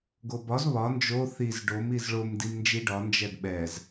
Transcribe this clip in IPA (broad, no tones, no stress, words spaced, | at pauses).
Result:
ɡobɒz βɒ nd͡ʒo θiz ɖom izɭom dimnd͡ʒiɖɒ nd͡ʒɛdɓɛz